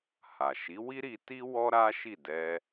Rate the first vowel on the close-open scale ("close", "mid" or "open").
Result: open